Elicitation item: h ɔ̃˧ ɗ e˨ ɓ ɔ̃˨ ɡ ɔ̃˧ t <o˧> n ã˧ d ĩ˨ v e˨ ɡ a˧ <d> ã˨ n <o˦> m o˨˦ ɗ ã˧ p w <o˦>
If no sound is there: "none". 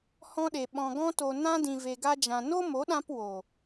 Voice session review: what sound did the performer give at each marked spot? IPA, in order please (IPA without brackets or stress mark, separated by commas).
o˨, d͡ʒ, o˦, o˨